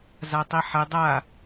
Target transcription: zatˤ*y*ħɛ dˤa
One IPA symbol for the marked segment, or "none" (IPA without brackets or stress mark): i